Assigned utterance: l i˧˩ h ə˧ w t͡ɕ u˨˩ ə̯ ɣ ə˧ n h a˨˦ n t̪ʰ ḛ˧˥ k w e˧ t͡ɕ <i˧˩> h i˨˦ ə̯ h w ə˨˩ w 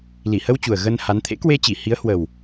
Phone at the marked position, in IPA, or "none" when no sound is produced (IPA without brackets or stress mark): i˧˩